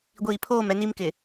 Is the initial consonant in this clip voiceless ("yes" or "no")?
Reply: no